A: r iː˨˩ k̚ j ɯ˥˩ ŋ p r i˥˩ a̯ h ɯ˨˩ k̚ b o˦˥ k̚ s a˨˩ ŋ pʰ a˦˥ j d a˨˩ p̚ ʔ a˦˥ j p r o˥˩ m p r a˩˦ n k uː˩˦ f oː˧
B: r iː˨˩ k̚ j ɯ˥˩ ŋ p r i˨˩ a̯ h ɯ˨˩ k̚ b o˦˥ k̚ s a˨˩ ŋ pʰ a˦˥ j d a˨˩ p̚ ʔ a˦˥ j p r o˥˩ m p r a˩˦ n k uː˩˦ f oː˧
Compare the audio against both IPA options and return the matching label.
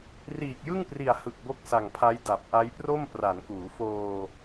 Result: B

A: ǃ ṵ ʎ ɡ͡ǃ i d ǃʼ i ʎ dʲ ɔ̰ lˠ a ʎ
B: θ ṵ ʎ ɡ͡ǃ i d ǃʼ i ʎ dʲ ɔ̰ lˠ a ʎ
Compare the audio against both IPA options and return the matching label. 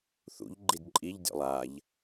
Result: B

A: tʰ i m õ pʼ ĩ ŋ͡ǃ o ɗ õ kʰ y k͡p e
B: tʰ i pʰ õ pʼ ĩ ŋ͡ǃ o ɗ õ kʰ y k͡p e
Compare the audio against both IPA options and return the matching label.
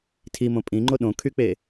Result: A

